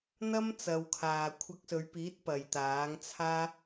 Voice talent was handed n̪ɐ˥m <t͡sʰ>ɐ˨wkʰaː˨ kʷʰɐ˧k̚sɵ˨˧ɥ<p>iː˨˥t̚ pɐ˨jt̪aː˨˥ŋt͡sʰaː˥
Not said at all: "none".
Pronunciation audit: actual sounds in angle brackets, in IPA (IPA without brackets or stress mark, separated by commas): t͡s, p